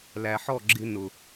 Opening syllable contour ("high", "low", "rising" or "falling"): low